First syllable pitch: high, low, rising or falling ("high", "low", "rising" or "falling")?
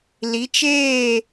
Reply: rising